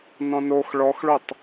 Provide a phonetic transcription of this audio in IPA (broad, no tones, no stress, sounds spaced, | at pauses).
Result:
n ɔ̃ n o x ɭ ɔ x ɭ o tˤ